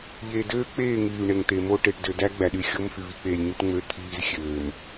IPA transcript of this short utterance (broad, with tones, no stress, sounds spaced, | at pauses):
ʎ eː˨ d øː˦ k͡p eː˦˨ ŋ yː˨ ɳ e˨ ŋ t̪ e˨ m o˦ ʈ eː˨ ʈ d ø˨ d æ˦ ɡ͡b æ˨ ɗ y˨ xʲ o˦ m f y˨ v i˦ k͡p eː˨ lʲ ŋ y˦ ʈ ŋ͡m ø˦ t̪ʰ iː˦ z xʲ øː˨ m